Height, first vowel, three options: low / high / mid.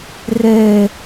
mid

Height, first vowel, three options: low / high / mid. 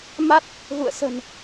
low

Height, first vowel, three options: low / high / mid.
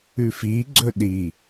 high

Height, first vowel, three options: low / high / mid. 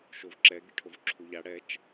mid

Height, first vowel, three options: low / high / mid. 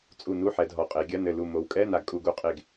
high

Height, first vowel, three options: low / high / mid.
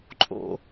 mid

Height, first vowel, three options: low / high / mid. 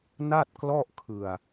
low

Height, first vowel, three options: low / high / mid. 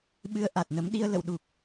high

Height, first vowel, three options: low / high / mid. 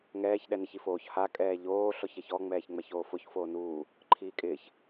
mid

